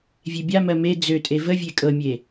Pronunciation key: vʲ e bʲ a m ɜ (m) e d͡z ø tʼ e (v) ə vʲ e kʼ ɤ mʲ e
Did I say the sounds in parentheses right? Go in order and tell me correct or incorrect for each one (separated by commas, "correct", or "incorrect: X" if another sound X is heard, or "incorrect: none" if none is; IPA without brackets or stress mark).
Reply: correct, correct